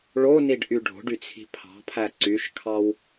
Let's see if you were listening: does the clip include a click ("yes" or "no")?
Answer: yes